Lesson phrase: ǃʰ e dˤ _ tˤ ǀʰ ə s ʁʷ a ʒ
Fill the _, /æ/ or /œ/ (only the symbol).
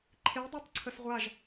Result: œ